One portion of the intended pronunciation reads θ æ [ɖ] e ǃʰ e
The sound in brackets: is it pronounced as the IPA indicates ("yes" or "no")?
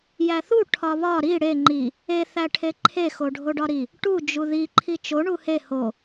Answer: no